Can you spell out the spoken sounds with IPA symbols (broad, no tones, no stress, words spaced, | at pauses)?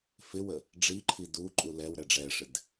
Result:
fɪwə | ɖ͡ʐiǃʰi duǃʼu lɛw ɾɛɖ͡ʐɛʂɪd